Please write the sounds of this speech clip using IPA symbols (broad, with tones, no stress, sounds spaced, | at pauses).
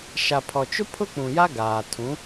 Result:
ʃ a˨ pʰ ɔ˨ t͡ʃ ʊ˦ pʰ ʊ˦ k͡p ũ˨ j a˦ ɡ aː˨ tʰ ũ˨˦